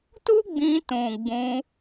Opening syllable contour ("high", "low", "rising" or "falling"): high